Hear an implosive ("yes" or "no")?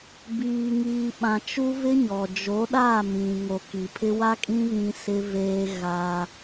yes